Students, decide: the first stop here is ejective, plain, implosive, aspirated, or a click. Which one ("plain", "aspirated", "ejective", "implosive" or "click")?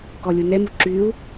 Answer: plain